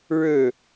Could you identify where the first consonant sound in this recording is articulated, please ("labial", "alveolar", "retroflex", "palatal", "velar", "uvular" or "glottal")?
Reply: retroflex